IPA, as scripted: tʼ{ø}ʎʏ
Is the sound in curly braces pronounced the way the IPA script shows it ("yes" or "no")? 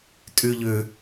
no